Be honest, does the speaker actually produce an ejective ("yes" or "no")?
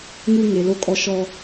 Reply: yes